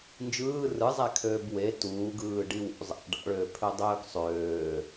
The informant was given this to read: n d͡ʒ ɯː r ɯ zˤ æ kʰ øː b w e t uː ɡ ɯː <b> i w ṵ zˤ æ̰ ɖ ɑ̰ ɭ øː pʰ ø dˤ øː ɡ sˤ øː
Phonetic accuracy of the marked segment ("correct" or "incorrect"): incorrect